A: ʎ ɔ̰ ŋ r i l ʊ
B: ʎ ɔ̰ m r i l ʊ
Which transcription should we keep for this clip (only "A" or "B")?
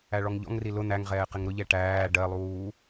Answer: A